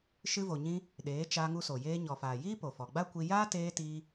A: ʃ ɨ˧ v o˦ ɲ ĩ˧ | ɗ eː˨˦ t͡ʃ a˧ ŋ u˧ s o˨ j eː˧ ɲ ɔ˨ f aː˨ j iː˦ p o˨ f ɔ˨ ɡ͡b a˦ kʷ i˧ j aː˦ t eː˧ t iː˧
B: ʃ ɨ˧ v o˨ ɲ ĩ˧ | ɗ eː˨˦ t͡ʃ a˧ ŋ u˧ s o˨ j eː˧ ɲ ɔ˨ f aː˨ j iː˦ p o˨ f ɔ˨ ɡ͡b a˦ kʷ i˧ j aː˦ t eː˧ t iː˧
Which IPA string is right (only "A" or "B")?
B